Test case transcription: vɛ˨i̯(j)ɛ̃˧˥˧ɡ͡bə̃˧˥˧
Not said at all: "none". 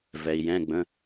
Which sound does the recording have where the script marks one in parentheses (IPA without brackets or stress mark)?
j